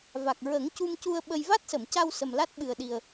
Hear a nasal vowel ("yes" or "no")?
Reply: no